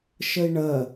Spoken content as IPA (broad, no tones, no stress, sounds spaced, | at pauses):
ʃ ə i̯ ɳ ɜ